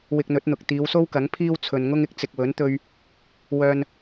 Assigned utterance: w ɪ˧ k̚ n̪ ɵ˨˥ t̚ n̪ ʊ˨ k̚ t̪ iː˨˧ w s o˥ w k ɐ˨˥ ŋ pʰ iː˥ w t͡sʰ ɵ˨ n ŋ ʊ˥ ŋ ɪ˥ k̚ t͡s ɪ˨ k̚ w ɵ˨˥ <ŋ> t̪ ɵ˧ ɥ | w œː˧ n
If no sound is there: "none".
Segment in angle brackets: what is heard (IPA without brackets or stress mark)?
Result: n